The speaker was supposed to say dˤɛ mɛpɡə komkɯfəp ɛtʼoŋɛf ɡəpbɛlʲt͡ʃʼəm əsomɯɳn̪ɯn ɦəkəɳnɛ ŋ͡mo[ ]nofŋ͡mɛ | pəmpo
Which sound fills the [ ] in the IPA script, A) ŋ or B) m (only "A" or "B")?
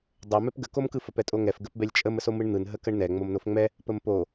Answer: B